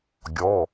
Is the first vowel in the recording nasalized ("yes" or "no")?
no